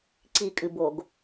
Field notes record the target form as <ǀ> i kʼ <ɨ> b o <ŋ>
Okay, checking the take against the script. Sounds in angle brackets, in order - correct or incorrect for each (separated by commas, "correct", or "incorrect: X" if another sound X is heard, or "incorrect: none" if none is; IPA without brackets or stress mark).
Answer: correct, correct, incorrect: ɡ